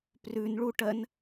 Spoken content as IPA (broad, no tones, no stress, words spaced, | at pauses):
prʉnɭuʈɜn